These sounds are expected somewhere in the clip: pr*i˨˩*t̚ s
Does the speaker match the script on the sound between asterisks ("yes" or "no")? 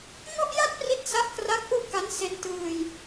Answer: no